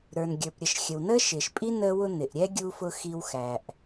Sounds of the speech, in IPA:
ɾə˞˩nɡʲə˞˩pɾʲə˩ʃ xʲə˩wnəː˦ ʃɪː˩ʃpʼi˥ nəː˦wʊ˦ n̪ɪ˩ʔɾʲɛ˥ ɡʲuː˦fʊ˦ xi˦wxæ˨ʔ

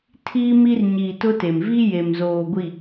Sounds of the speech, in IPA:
tʰiː˦mi˦r ɲiː˨tʊ˦ te˨m vi˦ je˨mzoː˨ɡʷi˨

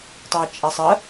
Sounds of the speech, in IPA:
tˤøjt͡ʃʼɛsˤə

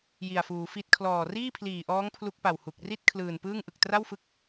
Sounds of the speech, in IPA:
ji˨˩a̯fuː˩˦fi˦˥t̚ kʰlɔː˨˩ riː˥˩pʰliː˨˩ʔɔː˦˥ŋ pʰlu˦˥k̚pa˨˩whu˨˩k̚ ri˥˩t̚ kʰlɯː˨˩npɯː˥˩ŋʔɯ˨˩k̚ tra˥˩wfɯ˦˥k̚

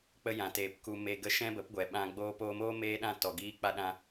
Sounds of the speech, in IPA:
k͡pə˧jã˨teː˨p ku˧me˧ɡə˦ ʃɛ̃˦bə˨˦p ɡʷɛ˨ɓã˧ ɡ͡boː˧poː˧moː˦ meː˦ɗã˦˨ tɔ˨ɡiː˧k͡pa˧ ɗã˦

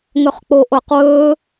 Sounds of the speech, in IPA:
ŋɵχk͡poʔoqwɵ

